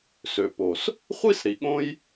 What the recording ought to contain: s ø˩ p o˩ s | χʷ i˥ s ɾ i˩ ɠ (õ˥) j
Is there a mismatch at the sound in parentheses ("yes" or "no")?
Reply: no